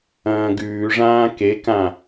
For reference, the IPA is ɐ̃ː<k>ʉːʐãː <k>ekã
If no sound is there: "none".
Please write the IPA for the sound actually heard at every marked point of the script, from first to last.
ɡ, k

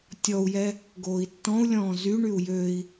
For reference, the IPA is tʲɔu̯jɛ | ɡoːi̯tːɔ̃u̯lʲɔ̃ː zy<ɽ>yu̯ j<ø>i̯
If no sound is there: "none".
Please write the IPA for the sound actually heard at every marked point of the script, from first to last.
ɳ, ø

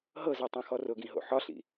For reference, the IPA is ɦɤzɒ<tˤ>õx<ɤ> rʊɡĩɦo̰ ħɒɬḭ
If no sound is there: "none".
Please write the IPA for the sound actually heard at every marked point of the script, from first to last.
tˤ, ɔ

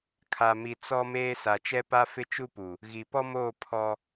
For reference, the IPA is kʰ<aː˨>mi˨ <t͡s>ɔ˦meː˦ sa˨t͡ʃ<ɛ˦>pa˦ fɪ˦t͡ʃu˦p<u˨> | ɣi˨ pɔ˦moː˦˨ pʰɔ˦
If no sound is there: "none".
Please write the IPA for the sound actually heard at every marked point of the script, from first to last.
a˨, t͡s, ɛ˦, u˨

